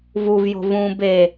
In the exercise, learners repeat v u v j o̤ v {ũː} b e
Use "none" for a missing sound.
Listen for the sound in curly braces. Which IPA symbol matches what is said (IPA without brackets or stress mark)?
ũː